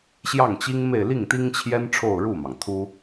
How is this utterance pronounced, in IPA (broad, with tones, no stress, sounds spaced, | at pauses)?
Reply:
ɕ j ɑ˥˩ ŋ t͡ɕ i˥ ŋ m e˥˧ ɪ̯ l i˥˩ ŋ t̪ i˥ ŋ t͡ɕʰ j ɛ˥ n ʈ͡ʂʰ o˥˧ ʊ̯ ɻ u˥˩ m ɑ˩ ŋ t̪ʰ u˥